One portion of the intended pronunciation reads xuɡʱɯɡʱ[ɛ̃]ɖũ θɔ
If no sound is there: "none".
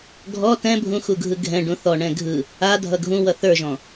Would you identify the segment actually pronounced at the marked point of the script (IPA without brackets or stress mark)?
ɛ̃